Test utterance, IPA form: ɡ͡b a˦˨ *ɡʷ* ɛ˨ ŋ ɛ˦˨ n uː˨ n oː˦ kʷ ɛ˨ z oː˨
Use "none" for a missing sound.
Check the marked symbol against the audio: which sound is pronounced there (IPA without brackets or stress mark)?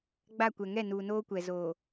kʷ